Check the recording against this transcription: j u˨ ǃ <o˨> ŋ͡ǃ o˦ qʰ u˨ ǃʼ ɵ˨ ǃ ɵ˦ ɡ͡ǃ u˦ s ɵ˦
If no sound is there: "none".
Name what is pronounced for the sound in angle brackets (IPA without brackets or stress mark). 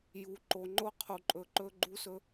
o˨